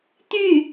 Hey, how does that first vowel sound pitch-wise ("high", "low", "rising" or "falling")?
falling